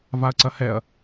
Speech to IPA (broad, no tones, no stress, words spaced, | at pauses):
vaɐ̯ǀɐhɛɐ̯